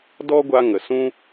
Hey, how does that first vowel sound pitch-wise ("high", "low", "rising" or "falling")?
high